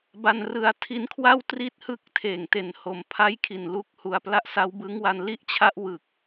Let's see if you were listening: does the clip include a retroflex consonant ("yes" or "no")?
no